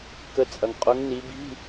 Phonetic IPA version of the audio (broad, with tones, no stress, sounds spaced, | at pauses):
k ə˨˦ t͡sʼ ɐ˨ ŋ qʼ ʊ˨˦ ŋ n i˨˦ b i̤˧˥˧